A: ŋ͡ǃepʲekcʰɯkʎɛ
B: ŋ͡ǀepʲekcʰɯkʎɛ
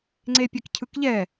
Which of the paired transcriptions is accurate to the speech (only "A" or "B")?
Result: B